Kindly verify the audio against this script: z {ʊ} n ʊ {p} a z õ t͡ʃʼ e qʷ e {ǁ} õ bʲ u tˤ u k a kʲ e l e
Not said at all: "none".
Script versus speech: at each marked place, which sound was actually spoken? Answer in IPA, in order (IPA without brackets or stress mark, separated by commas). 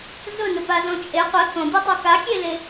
ʊ, p, k